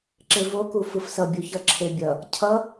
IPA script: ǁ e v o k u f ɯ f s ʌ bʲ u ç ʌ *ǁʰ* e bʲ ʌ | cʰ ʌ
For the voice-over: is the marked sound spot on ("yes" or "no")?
yes